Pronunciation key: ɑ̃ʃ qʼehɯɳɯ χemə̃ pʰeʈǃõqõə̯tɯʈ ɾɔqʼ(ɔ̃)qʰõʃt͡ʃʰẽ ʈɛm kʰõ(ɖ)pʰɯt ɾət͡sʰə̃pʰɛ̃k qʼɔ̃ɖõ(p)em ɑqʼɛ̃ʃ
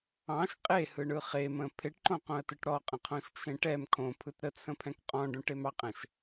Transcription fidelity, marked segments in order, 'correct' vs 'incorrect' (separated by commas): incorrect, incorrect, incorrect